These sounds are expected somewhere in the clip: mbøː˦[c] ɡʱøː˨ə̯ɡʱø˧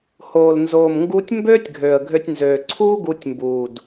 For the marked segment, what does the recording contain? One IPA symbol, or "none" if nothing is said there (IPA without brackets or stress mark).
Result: tʲ